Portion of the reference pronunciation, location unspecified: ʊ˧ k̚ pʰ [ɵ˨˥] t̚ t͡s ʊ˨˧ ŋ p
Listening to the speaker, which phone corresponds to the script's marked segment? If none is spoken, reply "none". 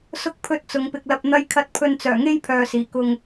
ɵ˨˥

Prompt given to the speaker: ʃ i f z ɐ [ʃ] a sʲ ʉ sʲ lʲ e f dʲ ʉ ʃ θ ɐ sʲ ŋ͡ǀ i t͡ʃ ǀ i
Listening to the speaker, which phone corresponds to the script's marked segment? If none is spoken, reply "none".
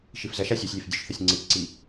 ʃ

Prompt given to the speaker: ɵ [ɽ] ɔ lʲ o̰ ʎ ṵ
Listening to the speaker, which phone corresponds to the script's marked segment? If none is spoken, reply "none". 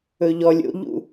ʎ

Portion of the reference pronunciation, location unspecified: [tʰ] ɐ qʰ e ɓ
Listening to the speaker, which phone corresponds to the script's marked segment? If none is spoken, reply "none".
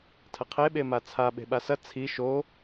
tʰ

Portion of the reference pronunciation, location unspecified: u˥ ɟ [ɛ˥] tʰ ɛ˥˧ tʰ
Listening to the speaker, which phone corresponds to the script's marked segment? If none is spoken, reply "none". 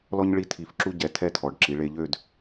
ɛ˧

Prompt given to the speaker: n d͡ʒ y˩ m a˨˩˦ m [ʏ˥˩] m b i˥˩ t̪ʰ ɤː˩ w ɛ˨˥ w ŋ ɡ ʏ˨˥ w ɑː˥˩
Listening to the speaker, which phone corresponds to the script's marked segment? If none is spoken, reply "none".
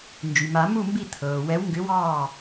u˥˩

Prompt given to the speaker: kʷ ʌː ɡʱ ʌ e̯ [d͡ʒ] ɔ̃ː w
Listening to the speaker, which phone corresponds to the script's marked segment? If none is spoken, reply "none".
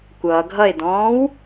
d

